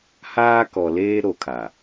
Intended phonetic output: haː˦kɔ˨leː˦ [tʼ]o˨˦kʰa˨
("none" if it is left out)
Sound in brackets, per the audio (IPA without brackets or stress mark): ɾ